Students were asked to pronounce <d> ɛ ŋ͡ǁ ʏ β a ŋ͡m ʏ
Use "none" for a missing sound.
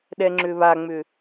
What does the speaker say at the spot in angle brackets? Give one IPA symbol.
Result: ɗ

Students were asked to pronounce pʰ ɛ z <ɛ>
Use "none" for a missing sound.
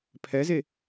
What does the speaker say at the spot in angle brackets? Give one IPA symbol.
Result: e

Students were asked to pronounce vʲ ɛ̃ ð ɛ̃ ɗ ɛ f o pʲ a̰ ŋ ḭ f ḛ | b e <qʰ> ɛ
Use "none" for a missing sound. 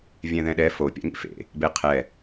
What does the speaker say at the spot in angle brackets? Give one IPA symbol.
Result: qʰ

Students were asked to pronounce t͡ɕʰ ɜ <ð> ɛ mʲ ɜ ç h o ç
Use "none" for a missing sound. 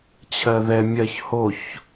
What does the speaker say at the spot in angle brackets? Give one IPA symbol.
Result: ð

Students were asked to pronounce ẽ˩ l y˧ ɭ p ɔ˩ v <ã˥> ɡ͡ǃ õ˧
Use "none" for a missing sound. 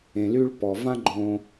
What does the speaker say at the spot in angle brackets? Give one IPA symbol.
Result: ã˥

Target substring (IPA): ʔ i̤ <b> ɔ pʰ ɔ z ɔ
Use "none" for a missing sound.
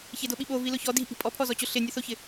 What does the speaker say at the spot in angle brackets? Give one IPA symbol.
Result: pʼ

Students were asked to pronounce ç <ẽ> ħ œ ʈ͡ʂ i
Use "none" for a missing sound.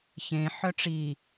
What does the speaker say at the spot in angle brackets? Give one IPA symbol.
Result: ẽ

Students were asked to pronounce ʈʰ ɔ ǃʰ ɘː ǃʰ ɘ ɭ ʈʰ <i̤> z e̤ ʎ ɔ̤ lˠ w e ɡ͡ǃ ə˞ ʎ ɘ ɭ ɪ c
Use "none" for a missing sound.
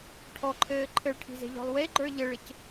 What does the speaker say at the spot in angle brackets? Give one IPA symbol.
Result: i̤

